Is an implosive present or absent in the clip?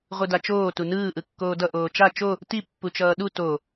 present